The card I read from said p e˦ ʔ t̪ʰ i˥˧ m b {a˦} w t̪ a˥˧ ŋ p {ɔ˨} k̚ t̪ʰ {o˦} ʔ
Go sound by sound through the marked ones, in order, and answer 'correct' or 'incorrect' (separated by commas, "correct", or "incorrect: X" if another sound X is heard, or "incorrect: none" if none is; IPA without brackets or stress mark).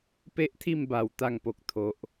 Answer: incorrect: a˨˩, incorrect: o˨, incorrect: o˨